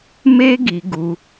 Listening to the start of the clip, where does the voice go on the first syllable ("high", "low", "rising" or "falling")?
high